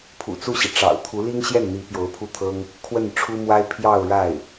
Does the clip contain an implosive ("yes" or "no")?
no